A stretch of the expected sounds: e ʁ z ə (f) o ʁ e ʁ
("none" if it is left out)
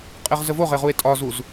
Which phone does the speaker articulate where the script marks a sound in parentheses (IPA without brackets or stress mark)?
v